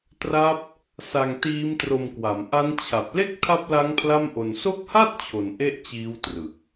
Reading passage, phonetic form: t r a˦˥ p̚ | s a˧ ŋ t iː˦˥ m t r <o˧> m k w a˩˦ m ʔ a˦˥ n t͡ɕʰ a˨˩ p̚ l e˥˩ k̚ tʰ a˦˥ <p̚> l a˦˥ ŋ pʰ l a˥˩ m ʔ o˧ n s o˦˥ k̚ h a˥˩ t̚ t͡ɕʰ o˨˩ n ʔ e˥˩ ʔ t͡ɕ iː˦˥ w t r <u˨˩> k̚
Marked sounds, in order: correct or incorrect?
correct, correct, incorrect

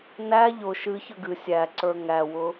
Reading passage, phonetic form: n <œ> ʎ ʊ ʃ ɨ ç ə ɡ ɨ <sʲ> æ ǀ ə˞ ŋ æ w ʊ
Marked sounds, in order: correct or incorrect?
incorrect, correct

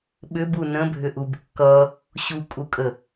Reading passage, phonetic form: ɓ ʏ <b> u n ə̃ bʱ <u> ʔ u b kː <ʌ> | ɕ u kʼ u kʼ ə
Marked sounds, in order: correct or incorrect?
correct, incorrect, correct

